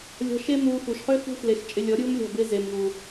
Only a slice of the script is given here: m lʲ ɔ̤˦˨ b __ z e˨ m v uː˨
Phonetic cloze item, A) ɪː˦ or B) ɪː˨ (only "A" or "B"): A